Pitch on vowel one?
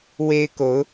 high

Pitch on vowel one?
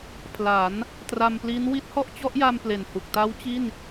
rising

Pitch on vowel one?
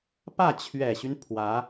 falling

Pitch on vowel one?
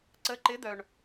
rising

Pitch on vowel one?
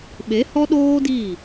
rising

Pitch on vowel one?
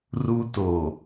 high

